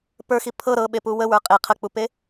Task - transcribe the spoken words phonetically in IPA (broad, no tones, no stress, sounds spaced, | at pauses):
p ə˞ x i pʰ ɤ ɾ ɤ ɓ e p u w ə w ə˞ qʼ e qʰ ə k͡p u p e